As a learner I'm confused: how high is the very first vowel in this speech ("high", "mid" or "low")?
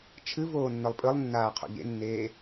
high